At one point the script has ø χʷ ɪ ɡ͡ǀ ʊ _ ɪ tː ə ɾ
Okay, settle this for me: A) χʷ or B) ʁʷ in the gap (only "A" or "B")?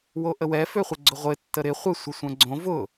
B